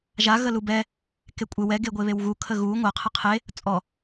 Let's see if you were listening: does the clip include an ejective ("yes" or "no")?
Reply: yes